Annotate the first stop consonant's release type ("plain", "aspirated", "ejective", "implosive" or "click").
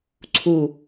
click